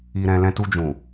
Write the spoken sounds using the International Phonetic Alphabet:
i˨ ɾ ɛ̃˨ l ɛ̃˧ t u˧ d͡ʒ ũ˨

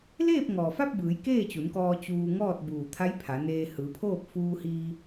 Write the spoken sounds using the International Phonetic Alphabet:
l eː˥˨ p̚ ŋ ɔː˩ f a˥˨ p̚ b ɯː˩˧ j k eː˥˨ t͡ɕ u˩˧ n k ɔː˧ t͡ɕ uː˧ ŋ ɔː˥˨ t̚ b uː˧˩ t̪ʰ a˧˥ j pʰ a˩˧ n eː˧ h ɯː˩˧ pʰ oː˥˨ p̚ f uː˧ h iː˧

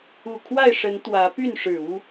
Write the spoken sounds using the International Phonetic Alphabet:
u˨˩ kʰ w a˥˨ ɪ̯ ʂ ə˨˦ n t̪ w ä˨˦ p y˥˨ n ʂ ɻ̩˨˩ u˦

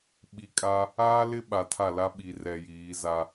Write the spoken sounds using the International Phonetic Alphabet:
ɓ i˨ kʼ a˦ | aː˦ l ɪ˦ ɓ a˨ tʰ a˦˨ l a˦ ɓ i˨ r ɛ˨ j iː˨˦ z a˦

